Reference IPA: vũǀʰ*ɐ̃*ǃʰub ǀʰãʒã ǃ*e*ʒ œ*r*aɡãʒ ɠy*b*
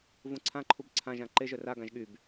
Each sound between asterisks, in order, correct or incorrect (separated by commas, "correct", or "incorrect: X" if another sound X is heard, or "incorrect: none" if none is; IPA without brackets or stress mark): incorrect: ã, correct, correct, correct